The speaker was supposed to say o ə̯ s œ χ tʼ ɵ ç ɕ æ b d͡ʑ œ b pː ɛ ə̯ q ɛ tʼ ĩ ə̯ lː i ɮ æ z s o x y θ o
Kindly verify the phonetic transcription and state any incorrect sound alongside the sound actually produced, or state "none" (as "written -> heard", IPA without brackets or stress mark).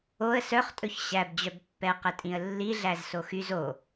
θ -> z